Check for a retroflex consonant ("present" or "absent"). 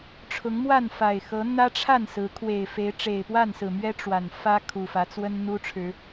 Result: present